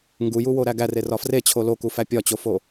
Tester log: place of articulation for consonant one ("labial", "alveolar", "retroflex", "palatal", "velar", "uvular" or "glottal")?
velar